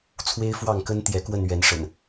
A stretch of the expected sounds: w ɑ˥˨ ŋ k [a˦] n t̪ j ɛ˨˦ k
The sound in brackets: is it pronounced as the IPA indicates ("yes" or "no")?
no